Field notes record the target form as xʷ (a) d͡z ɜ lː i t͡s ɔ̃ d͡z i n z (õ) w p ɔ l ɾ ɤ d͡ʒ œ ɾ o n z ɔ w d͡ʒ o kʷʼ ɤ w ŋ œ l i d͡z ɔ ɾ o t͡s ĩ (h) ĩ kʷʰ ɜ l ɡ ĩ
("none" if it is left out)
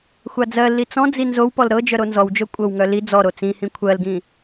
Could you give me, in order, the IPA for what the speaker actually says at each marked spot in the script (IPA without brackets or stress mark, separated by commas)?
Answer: a, o, h